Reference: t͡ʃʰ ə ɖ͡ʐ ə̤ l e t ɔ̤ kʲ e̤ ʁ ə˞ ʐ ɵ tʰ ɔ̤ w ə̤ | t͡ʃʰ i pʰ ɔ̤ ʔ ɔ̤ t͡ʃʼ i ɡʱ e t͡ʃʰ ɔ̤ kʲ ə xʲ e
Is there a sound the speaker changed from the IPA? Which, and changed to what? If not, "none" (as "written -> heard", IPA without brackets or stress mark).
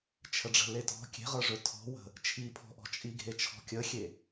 none